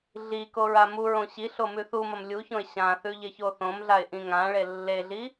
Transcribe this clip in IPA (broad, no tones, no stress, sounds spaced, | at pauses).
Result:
ɮ i k o ɹ a m u ɹ õ ɕ i ɬ o m ʉ θ u m ɐ m lʲ u ç õ ɪ̯ ɕ ã θ ʉ ʎ e ç o θ õ m ɮ a ɪ̯ ʔ ĩ ŋ ã ɭ e lː e ɮ i